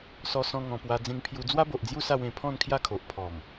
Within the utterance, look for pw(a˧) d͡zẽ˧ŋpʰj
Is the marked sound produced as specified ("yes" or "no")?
yes